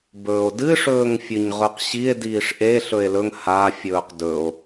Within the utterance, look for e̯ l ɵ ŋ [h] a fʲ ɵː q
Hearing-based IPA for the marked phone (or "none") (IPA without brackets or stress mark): h